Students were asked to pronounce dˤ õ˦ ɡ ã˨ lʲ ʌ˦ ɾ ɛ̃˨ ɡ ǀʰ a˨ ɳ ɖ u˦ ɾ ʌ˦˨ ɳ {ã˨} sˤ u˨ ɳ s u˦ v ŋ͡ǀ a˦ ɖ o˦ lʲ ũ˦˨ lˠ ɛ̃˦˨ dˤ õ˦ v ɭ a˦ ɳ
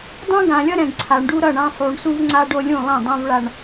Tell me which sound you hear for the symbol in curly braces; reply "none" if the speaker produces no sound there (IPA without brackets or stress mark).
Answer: ã˦